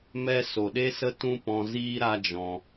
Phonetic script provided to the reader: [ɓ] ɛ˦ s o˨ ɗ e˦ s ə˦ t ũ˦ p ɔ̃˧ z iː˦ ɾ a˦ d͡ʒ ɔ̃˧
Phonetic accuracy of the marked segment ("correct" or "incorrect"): incorrect